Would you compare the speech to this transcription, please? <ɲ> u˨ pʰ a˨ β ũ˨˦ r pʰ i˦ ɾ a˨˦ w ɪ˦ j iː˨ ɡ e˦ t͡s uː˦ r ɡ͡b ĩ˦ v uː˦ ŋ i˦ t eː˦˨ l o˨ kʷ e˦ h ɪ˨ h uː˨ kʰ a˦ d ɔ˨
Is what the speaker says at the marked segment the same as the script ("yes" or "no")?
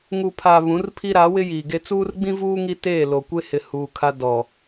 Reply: no